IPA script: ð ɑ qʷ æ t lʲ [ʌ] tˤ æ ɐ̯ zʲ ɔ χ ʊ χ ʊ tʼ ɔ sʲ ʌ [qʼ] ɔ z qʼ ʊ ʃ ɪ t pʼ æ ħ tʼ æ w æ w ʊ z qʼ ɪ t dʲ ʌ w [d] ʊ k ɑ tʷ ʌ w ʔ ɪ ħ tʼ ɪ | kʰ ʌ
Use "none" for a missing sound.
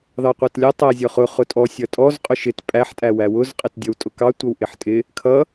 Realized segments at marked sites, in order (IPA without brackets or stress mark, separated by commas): ʌ, tʼ, tʼ